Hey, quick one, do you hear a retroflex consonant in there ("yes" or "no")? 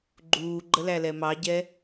no